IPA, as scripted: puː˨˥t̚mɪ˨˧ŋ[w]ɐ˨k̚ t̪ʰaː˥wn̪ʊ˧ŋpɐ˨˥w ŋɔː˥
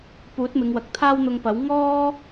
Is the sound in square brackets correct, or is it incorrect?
correct